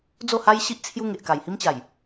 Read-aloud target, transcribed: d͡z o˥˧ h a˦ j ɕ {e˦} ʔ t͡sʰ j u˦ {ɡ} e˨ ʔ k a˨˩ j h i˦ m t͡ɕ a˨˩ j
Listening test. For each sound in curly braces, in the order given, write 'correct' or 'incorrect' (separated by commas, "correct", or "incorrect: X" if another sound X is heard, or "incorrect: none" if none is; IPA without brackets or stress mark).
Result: incorrect: i˦, incorrect: ŋ